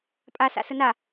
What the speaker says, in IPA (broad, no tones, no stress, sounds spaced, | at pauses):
pʼ a s a̰ s ə n a